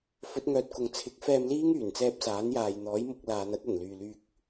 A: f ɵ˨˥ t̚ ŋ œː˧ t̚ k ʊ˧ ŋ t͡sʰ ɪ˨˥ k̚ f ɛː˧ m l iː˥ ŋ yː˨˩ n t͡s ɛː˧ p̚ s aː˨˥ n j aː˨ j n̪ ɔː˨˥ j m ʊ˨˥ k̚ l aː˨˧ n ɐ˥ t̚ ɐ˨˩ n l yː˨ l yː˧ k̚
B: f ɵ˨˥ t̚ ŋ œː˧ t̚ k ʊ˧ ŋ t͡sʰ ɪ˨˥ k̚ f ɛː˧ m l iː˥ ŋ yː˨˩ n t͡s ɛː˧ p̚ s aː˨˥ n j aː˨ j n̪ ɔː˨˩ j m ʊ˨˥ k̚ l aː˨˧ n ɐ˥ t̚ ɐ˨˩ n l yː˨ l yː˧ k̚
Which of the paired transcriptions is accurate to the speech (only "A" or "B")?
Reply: A